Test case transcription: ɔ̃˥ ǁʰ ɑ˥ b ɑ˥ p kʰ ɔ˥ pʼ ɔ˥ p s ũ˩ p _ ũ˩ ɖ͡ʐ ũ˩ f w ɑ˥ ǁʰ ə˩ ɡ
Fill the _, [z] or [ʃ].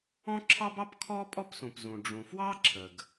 z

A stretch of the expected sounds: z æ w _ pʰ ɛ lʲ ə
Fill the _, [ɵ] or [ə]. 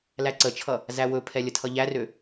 ɵ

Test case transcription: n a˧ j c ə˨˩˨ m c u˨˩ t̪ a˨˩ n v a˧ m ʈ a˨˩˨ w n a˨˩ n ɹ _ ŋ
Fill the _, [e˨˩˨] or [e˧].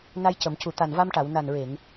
e˨˩˨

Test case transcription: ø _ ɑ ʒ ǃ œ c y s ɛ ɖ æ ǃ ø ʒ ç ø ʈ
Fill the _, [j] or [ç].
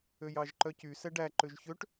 j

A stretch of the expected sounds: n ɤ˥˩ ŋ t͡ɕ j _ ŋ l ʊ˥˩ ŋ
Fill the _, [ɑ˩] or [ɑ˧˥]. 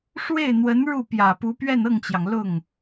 ɑ˩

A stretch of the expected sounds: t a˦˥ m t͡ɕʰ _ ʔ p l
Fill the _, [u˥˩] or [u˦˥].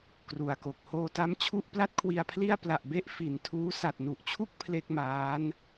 u˥˩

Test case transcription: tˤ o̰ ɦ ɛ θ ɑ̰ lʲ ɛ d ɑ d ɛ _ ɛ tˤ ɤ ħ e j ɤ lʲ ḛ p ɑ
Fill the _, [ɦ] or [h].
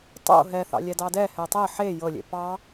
h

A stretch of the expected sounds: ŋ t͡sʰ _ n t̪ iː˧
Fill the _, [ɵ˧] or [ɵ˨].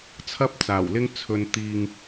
ɵ˧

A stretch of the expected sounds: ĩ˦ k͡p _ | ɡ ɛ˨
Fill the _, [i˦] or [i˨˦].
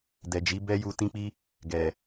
i˦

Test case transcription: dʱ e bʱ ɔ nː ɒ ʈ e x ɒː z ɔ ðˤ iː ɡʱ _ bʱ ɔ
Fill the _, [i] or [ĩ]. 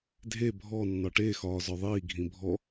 ĩ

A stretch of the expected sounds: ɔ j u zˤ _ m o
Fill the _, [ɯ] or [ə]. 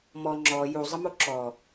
ə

